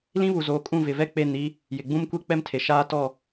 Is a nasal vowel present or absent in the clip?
present